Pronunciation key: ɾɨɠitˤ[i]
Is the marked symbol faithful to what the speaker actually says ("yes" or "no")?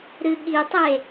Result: no